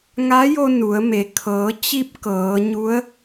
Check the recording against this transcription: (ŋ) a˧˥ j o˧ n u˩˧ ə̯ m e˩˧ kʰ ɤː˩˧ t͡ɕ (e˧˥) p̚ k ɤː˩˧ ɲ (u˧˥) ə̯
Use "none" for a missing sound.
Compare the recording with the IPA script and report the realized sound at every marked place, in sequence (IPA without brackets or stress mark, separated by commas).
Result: ŋ, i˧˥, u˧˥